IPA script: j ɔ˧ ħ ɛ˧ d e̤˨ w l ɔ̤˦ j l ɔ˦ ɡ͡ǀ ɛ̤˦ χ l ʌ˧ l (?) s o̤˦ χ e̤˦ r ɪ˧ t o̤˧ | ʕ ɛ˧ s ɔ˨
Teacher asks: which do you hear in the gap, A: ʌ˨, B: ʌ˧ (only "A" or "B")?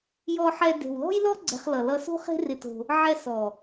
B